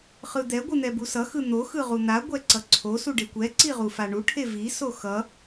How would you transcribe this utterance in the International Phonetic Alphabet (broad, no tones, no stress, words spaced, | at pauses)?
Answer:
χɯd̪ɛ ɡʷɯn̪ɛbusʌ xɯn̪o xɯʁun̪a ɡʷɛǀʌǀʰo suɖekʷɛ ǀiʁufaɳu ʈʰevi soxʌ